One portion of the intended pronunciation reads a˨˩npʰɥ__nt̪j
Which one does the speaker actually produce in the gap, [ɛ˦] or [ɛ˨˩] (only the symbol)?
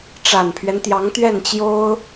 ɛ˦